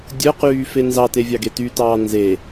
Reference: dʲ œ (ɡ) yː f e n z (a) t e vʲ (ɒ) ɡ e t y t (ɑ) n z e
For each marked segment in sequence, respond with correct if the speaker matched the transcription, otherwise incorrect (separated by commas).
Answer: incorrect, incorrect, incorrect, incorrect